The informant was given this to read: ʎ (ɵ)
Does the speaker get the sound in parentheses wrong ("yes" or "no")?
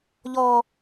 yes